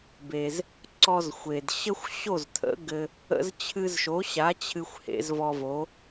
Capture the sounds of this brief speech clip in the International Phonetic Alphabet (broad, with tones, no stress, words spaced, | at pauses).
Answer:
be˩z | ǀɔ˧zxʷe˩d ɕə˥xʷ ɕo˥˩ztʰə̰˩˥ ɡɘ˧ | ə̰˧zt͡ɕʰɨ˧zʃo˩˥ɕa˩˥ t͡ɕʰɨ˧xʷhḛ˧zvɔ˧vo˩˥